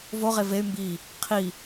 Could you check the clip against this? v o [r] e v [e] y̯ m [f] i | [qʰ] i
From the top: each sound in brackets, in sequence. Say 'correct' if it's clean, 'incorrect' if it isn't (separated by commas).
incorrect, correct, incorrect, correct